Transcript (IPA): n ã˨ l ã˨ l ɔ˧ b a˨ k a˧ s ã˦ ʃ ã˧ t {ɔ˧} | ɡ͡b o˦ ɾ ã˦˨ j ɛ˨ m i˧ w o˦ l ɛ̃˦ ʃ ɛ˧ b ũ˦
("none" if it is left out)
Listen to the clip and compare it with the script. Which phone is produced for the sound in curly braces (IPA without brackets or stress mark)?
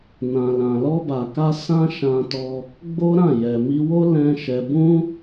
ɔ˧